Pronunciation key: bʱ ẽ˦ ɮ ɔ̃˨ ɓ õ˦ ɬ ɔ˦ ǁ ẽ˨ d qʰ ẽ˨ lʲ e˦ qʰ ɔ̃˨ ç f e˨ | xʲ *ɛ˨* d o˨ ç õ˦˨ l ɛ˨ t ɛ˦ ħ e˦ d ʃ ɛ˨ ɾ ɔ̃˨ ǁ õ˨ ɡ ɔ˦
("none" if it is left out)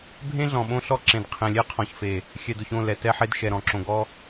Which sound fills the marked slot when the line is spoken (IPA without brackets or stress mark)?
ɛ˨